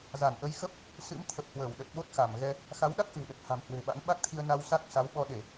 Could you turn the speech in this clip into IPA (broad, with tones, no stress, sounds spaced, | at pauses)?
z a˧˩ n ʔ ə˨˦ j x ə˦˥ p̚ | s ɨ̰˧˥ m t̪ʰ ə˨˩ p̚ h w əː˧˩ w ɗ ə˨˩ t̚ ɓ o˦˥ t̚ x a˧˩ m ɣ ɛ˧ | x a˨˦ w ɗ a˦˥ k̚ ʔ ɨ̤˨˩ w ɗ ə˨˩ t̚ h a̤˨˩ m h w e̤˨˩ ɓ a̰˧˥ n ɓ a˦˥ k̚ t̪ʰ i˧ ə̯ n a˧ w s a˦˥ k̚ s a˨˦ w ɓ ɔ˧ ɗ e˧˩˨